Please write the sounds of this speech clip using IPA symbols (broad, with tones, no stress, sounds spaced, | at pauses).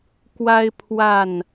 k w a˦ ɪ̯ pʰ w a˥˨ n